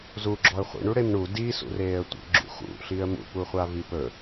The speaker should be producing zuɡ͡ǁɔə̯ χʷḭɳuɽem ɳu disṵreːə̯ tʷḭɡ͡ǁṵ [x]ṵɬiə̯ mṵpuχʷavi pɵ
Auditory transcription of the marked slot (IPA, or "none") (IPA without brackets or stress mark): x